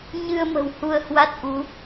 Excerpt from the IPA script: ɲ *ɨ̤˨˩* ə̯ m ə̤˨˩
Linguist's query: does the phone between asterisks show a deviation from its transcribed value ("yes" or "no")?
yes